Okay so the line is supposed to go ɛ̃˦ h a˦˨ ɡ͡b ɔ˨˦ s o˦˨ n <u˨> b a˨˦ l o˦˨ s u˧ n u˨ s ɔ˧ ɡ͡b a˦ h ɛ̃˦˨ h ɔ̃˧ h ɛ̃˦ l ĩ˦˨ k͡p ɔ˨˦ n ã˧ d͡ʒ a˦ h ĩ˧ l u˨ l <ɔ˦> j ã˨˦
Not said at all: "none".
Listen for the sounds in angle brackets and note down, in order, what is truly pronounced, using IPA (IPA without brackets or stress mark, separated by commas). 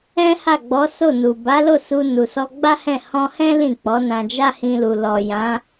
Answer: u˨, ɔ˨